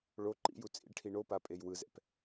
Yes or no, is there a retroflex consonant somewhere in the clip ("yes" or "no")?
yes